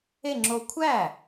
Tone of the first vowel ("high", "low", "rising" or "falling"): falling